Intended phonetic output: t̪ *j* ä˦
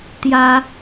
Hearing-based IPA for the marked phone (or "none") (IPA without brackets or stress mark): j